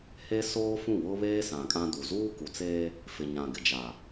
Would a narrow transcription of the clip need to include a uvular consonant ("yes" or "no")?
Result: no